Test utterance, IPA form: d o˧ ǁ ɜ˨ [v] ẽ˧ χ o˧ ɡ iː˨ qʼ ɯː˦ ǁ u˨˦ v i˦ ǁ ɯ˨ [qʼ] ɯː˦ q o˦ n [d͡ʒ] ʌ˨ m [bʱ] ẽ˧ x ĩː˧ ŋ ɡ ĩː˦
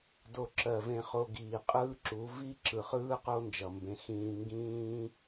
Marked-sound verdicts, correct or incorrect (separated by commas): correct, incorrect, correct, incorrect